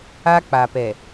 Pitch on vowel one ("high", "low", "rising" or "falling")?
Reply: high